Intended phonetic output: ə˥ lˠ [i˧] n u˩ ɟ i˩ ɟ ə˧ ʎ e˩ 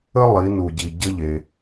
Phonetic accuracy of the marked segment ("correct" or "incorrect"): incorrect